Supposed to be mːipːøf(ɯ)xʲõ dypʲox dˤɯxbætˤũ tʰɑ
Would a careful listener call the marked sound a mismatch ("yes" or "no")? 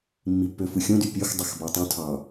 no